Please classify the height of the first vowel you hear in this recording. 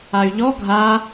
low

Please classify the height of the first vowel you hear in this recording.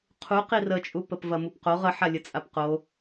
high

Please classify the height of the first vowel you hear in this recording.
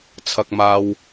low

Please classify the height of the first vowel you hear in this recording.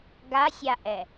low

